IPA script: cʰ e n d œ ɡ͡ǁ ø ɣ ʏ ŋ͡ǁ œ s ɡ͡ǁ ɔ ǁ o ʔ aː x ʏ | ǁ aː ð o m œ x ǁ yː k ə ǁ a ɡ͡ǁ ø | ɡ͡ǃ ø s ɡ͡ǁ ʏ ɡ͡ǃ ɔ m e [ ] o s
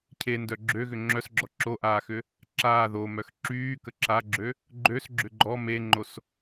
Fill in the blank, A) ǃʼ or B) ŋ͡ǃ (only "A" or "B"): B